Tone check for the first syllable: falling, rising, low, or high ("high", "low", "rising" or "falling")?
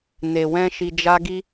low